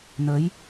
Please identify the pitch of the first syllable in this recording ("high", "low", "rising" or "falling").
rising